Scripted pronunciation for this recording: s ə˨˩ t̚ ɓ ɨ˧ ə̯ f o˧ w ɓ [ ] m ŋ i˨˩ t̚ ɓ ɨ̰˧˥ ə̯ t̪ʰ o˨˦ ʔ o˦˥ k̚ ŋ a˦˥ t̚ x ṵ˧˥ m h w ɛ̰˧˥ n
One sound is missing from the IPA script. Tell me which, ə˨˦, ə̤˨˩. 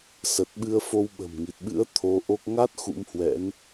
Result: ə̤˨˩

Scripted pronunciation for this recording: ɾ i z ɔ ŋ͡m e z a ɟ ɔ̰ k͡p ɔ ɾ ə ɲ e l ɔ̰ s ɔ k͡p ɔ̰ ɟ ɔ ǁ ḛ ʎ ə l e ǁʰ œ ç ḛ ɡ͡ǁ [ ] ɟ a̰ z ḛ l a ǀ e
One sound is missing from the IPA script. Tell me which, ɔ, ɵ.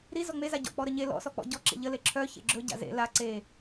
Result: ɵ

